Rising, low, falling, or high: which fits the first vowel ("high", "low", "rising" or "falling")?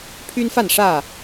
high